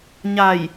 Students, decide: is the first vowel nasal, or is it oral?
oral